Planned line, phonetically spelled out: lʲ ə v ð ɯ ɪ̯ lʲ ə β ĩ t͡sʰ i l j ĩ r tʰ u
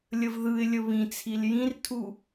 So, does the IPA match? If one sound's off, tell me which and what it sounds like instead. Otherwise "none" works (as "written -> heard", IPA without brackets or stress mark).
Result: none